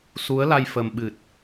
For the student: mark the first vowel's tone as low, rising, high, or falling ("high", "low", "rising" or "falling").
rising